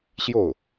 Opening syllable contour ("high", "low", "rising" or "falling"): falling